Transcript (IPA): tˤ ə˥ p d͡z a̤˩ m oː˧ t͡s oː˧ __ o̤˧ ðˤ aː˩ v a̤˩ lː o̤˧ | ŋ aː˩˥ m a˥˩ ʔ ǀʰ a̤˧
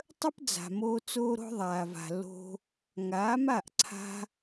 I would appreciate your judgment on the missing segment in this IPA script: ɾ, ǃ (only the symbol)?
ɾ